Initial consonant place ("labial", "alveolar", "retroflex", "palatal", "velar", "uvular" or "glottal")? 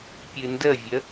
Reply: labial